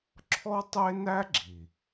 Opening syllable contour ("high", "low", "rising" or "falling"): high